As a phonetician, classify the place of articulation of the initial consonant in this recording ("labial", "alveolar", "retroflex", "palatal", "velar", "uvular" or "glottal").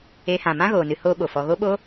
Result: glottal